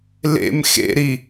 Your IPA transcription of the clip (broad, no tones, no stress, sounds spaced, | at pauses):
l ḛ m x ḛ ɾ i